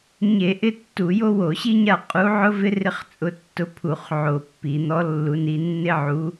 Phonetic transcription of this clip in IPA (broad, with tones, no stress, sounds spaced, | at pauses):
ɲ e˧˩˧ ʔ ɪ˥˧ tː u˧˩˧ j o˥ w o˧˩˧ ɕ i˥ ɲ a˥˧ qʼ u˧˥ ʕ ʊ˥ v ɪ˥ r ɪ˥ χ t͡sʼ ʊ˧˥ tː ʊ˧˥ pʰ u˧˩˧ χ ʕ o˧˩˧ pː i˧˩˧ n̪ ɔ˧˥ lː u˧˥ n i˧˥ nː ɪ˥ ʕ u˧˥